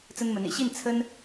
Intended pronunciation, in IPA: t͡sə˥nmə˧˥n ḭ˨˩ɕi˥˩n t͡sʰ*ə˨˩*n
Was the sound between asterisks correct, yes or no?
no